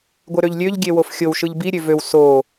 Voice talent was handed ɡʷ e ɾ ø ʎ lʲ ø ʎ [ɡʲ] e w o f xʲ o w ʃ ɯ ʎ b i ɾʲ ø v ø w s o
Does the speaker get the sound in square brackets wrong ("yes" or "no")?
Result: no